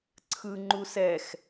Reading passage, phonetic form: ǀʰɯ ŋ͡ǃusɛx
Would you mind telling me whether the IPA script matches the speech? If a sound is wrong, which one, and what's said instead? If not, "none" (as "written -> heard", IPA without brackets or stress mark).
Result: none